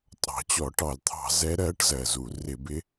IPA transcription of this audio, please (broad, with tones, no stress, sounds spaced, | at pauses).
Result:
tʼ ɑ̤˨˩ t͡ɕ ɔ˧˩˧ ʈ ɑ˧˩˧ l t̪ʰ ɑ̤˧˩˧ z ɛ˧˥ ɾ ɜ˧˥ ʈ z ɜ˨˩ z u˧˩˧ r ɪ˧˩˧ b ɪ˧˥